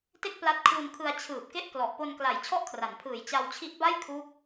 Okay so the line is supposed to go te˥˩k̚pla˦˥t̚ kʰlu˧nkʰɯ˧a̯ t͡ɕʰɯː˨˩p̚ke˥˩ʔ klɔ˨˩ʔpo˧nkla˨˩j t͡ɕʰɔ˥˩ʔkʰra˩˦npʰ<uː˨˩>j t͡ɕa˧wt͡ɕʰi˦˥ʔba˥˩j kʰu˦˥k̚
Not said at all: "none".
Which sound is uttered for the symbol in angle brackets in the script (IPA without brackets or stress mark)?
ɯː˨˩